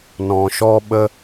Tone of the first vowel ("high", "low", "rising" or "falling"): low